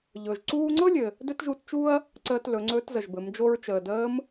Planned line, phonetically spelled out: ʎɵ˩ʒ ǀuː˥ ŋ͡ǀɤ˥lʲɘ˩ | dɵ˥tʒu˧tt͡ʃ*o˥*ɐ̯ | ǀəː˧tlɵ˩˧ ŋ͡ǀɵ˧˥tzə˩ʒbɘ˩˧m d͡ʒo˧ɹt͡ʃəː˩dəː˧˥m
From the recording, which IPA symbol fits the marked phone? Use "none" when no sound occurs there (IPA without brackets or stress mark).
u˥